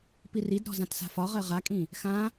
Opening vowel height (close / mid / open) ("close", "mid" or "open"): close